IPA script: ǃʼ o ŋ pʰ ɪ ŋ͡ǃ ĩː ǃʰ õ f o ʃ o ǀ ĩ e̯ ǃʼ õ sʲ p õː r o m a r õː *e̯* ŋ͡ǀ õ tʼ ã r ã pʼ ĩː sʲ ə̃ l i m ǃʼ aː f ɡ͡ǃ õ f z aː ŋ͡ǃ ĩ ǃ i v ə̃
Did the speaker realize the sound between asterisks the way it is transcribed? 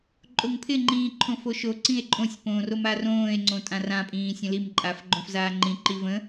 yes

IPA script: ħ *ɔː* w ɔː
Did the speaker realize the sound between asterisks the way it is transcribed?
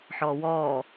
yes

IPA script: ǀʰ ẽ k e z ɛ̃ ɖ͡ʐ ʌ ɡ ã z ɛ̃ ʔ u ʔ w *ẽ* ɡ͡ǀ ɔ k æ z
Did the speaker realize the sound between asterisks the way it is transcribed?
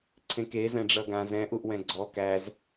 no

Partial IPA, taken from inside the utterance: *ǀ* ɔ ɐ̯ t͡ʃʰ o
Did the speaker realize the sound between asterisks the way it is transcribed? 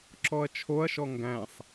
no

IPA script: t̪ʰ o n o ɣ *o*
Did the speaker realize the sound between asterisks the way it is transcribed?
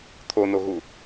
no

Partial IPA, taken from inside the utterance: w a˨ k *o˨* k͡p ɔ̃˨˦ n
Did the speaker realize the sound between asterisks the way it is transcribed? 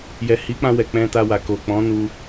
yes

